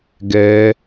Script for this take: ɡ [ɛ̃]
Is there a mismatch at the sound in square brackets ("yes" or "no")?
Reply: yes